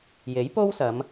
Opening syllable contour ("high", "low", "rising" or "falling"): rising